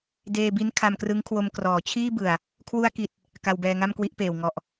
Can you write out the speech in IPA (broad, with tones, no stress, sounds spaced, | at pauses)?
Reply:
d eː˧ b i˦˥ n kʰ a˧ m k r ɯ˦˥ ŋ kʰ w o˧ m k r ɔː˩˦ t͡ɕʰ iː˥˩ b ɯ˨˩ a̯ | kʰ w u˧ a̯ k i˨˩ t̚ | k a˧ w b ɛː˧ ŋ a˥˩ m k w i˥˩ ʔ p eː˨˩ w ŋ ɔ˨˩ ʔ